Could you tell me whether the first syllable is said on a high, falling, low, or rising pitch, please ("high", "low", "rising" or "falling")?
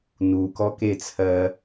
low